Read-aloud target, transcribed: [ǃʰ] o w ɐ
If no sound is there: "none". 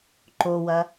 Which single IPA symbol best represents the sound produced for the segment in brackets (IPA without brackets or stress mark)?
ǃ